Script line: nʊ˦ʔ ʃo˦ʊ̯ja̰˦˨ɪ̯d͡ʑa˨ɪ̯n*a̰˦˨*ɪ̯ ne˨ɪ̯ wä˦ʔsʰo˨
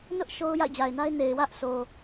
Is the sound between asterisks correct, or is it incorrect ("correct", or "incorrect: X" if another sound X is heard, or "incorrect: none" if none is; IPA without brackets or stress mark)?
incorrect: a˦